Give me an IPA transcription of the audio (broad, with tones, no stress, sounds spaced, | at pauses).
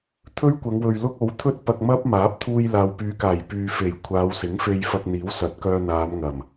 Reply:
t̪ʰ ɵ˥ ɥ kʷ ɐ˨˧ ŋ w ɵ˨ ɥ l ʊ˥ k̚ o˨˥ w t̪ʰ ɵ˥ t̚ p ɐ˧ k̚ m ɐ˥ p̚ m aː˨˥ p̚ t̪ʰ uː˧ j l aː˨ w p yː˨˧ k aː˨˩ j p yː˨ f e˨˩ j kʷʰ aː˨˧ w s ɪ˨˥ ŋ f e˧ j f ɐ˧ k̚ n̪ iː˨˥ w s ɐ˨˥ t̚ k œː˧ n̪ aː˨˧ m ŋ ɐ˨˩ m